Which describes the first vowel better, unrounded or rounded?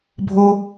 rounded